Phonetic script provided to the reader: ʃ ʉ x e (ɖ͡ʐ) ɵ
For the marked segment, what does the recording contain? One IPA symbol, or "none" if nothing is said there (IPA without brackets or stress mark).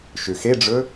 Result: ɖ͡ʐ